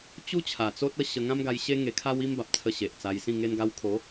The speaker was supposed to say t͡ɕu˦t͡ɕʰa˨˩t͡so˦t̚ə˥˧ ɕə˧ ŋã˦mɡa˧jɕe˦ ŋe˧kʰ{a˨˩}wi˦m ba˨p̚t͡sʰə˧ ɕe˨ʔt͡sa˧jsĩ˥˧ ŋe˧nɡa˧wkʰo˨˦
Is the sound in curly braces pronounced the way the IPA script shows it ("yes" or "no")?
no